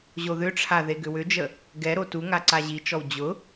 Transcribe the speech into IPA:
ʑ o ð ʏ ʈ͡ʂʰ a ð e ɡ ʏ w ʏ d͡ʒ ə | ɡ ɛ ɾ o t u ŋ a ǀ a ʑ i t͡ʃ ɔ w d͡ʑ ʊ

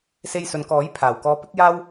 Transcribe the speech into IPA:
s e˧ j s ɵ˨ n k ɔː˨˥ j pʰ aː˨˩ w k ɔː˧ p ɪ˥ k̚ j aː˥ w

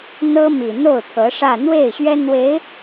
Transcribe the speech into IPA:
n̪ ɤ˥ m i˨˩ n̪ o˥˩ ʊ̯ t̪ʰ ɤ˧˥ ʂ ä˥˧ n̪ w e˥˩ ɪ̯ ɕ ɥ ɛ˥ n̪ w e˧˥ ɪ̯

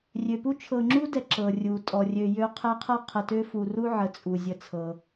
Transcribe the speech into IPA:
rʲ ø˩ p u˦ t͡ʃʰ ɤ˨ ŋ͡ǁ u˦ d ɛ˨ ǁ ɤ˩ rʲ u˩ tʼ ɔ˩ rʲ ø˨ j ø˦ qʰ ɛ˦ qʰ ɤ˥ qʰ ə˨ t ø˦ f u˨ r u˥ ʕ ə˨ t͡sʼ u˩ zʲ ə˨ t͡sʰ ɤ˩

